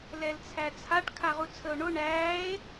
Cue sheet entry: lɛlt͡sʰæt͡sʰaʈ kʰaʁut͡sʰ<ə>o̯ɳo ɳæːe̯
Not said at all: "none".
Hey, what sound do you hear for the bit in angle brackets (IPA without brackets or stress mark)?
ə